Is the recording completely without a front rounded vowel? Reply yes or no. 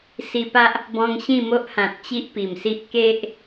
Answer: yes